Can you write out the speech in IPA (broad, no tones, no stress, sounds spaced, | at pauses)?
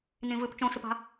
n ĩ v ɨ p t͡ʃ õ s ɨ p a̤